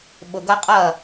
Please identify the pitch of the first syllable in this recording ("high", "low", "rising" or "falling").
low